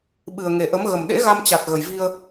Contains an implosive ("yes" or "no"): yes